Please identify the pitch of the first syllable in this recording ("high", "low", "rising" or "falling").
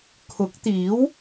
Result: rising